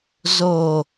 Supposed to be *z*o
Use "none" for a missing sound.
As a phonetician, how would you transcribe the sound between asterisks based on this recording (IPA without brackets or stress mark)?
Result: z